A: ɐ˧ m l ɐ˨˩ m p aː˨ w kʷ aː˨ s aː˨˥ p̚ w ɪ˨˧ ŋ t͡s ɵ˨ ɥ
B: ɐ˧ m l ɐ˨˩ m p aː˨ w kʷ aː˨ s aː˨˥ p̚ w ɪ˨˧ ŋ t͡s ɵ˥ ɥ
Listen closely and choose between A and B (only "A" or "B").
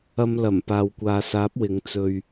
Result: A